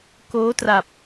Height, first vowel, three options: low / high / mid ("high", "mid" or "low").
mid